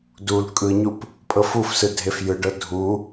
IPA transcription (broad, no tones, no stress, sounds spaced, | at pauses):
d u l kʼ ɯ ɲ u p | pʼ ɤ f u f s ɯ dʱ e f j ɯ ɖ ɤ dʱ u